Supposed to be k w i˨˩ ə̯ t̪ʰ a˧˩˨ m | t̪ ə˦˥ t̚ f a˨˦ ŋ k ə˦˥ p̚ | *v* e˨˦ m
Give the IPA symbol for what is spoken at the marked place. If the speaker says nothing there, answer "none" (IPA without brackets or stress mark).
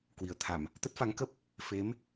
f